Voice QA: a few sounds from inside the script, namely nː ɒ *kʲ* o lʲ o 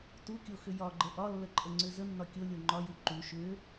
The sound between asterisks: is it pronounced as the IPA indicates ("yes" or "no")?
yes